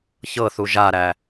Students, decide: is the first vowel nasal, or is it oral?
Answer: oral